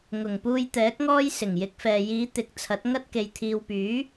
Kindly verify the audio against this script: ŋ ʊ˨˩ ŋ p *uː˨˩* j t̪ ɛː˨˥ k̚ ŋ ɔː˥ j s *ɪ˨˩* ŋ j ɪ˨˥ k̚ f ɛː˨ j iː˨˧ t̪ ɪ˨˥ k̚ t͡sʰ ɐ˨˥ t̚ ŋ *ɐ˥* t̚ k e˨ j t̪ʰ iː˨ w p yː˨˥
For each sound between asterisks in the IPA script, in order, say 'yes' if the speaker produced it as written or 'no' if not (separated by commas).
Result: no, yes, yes